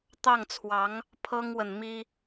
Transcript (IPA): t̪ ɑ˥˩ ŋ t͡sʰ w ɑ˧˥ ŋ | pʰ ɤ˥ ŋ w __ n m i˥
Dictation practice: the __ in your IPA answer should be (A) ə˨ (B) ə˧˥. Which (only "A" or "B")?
A